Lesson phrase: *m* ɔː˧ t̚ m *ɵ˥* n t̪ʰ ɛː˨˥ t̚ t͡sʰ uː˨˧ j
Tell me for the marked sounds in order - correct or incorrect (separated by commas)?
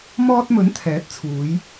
correct, incorrect